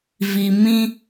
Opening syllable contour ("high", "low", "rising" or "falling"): low